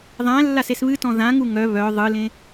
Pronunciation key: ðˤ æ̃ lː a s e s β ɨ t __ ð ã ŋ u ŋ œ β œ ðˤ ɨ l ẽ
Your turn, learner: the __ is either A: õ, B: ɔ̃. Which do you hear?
B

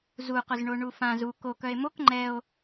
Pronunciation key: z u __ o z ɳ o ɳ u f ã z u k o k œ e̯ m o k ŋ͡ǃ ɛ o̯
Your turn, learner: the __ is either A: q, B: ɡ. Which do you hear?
A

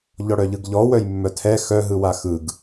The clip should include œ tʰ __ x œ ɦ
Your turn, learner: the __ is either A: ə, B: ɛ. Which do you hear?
B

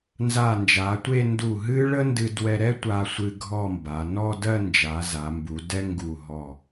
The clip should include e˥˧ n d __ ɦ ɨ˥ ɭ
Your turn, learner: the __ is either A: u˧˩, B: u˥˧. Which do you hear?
A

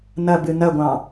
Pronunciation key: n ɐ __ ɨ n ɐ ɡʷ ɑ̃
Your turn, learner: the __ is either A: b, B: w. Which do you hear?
A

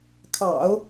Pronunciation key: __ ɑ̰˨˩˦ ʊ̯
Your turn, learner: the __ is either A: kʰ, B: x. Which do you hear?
A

